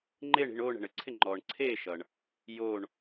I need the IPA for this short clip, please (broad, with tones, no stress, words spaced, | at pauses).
ŋ͡ǃe˥˧ɳi̤˥˧ɳ oː˥˧ɳɛ̤˨ɳɘ˨ǀʰɪ˥˧ ŋ͡ǃɔː˨ɳǀʰeː˥˧ʃʌ˨ɳ | joː˥˧ɳ